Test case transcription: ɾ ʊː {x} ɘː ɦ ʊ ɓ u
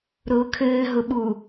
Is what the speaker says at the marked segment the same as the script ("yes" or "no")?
no